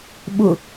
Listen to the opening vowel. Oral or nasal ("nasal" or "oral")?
oral